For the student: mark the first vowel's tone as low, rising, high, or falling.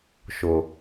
low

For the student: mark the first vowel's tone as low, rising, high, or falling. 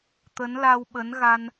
rising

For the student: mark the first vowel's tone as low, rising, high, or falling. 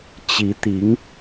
rising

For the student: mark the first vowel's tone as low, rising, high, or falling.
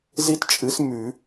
high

